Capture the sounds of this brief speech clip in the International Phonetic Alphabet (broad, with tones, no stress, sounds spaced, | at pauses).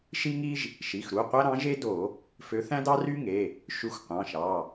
ʃ i˥ ŋ i˥ ʒ | ʃ i˩˧˩ x ɾ u˩˧˩ qʷ æ˥ ɾ ɑ̃˧˥ ʒ e˥ d o˧˩˧ | f ø˧˥ θ æ̃˥ d ɑ˥ r y˥ ŋ e˩˧˩ | ʃ y˧˥ xʷ qʷ ɑ̃˩˧˩ ʃ ɑ˩˧˩